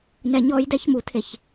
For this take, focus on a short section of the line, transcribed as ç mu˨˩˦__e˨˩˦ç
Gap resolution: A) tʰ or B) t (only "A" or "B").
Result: A